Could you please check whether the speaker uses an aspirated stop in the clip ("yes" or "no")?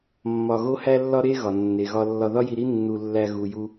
no